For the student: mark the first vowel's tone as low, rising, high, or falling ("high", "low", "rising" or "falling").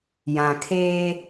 low